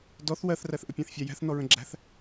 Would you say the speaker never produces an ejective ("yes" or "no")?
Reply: yes